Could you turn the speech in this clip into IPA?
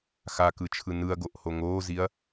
xakɯt͡ʃʰɯ nɯɐ̯ɡoʔho ŋoːziɐ̯

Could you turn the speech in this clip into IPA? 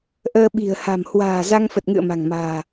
ʔəː˧ɓi̤˨˩ə̯ha̤˨˩m hwa̤ː˨˩ za˧ŋfə˨˩t̚ŋɨ̰˧˨ə̯ ma̤˨˩ŋma̤ː˨˩

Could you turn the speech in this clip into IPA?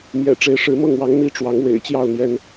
mjɛ̰˨˩ ʈ͡ʂe˨˦ɪ̯ʂɻ̩˨˦ mɤ˥˨ŋwɑ˨˦ŋ n̪i˥˨ʈ͡ʂwɑ˨˦ŋ wḛ˨˩ɪ̯t͡ɕjɑ˥˨ʊ̯n̪jɛ˨˦n

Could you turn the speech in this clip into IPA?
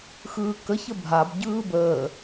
xɯːkə çəbʱab ɟɯːbəː

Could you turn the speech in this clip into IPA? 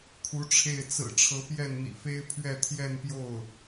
kʰu˧˥ʈ͡ʂʰe˥˩ɪ̯ t͡sɹ̩˨˩ ʈ͡ʂʰɤ˧˥ pjɛ˥˩nn̪ḭ˨˩fe˥ɪ̯ pʰɥɛ˥˧t̪ʰjɛ˥˧npjo˥˩ʊ̯

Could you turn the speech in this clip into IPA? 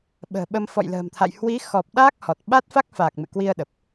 ɓə̤ː˨˩ɓə˧m fɔ̰˧˨jlə̤ː˨˩mt̪ʰa̰˧˨j hwi˨˦xɔ˨˩p̚ ɗaː˦˥k̚hɔ˨˩t̚ ɓa˦˥t̚fa˦˥k̚faː˨˩k̚ mɨ̰˧˨kwi˧ə̯ɗə˨˩p̚

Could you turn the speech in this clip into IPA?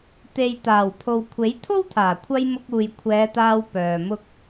t̪e˨jt̪aː˨˩wpʰo˨w kʷʰe˨˥jt̪ʰo˥wt̪ʰaː˨˩ kʷʰɐ˧j mʊ˧k̚uː˨jkʷʰɛː˨˧t̪aː˧w pœː˨ mʊ˧k̚

